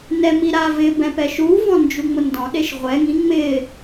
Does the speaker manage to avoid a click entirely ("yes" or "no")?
yes